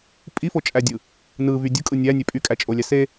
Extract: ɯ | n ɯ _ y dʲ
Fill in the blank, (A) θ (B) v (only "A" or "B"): B